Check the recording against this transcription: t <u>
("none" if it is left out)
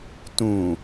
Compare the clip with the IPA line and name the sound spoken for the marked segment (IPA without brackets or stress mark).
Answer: ũ